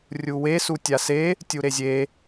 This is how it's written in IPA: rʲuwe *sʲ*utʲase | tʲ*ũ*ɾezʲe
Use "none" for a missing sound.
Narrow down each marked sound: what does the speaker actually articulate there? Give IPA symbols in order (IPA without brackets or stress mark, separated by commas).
s, u